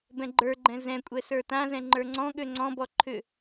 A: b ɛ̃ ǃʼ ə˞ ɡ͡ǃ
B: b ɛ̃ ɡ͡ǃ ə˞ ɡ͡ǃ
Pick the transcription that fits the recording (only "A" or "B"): B